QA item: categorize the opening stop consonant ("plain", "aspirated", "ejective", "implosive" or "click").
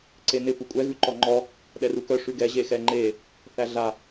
click